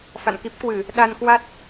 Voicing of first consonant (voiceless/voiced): voiceless